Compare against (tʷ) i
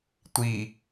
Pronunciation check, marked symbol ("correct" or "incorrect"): correct